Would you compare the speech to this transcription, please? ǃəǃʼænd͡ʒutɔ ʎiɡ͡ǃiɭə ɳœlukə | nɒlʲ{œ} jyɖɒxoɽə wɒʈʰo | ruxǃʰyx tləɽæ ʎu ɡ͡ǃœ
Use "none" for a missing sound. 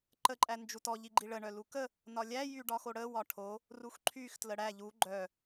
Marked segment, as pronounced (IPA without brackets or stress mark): æ